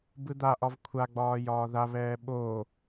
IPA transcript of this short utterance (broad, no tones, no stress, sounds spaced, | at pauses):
b ɯ d̪ a ʔ ɒ v kʷʰ a ɡ͡b ɒː j ɒː ð a β ɛː ɓ oː